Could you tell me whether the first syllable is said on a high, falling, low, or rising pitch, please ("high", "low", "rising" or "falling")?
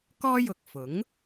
high